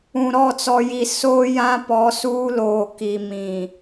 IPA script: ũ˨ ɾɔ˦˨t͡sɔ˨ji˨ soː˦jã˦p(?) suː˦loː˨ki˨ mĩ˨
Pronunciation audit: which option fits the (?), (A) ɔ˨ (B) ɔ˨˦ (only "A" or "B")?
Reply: B